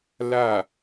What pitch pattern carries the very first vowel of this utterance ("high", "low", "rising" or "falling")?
falling